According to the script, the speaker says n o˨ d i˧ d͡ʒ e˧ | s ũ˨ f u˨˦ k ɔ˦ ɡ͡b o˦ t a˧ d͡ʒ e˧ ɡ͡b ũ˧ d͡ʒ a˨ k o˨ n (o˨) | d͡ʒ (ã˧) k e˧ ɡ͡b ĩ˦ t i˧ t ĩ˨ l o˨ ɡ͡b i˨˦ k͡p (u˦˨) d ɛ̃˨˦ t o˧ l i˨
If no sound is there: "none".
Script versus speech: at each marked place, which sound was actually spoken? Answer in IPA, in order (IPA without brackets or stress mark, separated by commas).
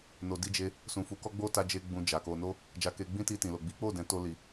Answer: o˧, a˧, o˦˨